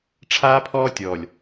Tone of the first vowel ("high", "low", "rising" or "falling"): high